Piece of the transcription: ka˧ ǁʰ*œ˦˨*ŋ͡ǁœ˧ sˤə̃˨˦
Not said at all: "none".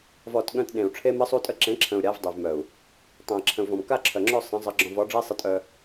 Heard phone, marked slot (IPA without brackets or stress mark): œ˨